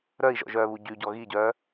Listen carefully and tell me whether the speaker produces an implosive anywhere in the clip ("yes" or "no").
no